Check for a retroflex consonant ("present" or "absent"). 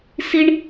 present